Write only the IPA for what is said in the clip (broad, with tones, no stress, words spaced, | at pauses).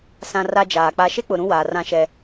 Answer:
sã˨ ra˦d͡ʒaː˨k͡pa˦ ʃe˦k͡pʊ˨ ɾũ˦waː˨rã˦ʃɛ˦